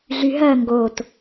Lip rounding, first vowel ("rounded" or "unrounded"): rounded